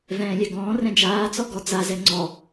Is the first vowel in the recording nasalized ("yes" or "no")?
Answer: yes